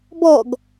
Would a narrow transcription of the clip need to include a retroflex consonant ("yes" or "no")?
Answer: no